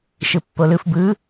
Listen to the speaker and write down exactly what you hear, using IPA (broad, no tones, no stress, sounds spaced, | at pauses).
ʃ ɯ pː o l ɯ f b ɯ